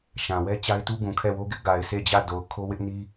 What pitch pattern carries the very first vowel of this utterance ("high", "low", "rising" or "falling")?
low